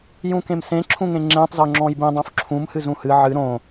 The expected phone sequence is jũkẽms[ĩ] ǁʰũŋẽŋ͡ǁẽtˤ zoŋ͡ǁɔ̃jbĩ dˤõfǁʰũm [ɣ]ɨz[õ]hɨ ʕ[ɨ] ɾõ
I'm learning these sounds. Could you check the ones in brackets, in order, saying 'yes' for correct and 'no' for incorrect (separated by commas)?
no, no, no, yes